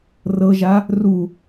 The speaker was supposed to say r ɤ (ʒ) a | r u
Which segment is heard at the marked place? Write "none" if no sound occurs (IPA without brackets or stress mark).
ʒ